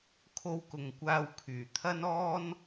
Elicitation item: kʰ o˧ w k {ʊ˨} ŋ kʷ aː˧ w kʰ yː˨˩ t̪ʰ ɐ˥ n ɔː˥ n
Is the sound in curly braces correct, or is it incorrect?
correct